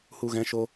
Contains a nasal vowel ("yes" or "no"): yes